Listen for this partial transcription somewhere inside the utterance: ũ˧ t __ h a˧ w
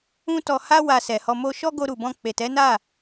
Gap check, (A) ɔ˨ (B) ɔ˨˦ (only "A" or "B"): A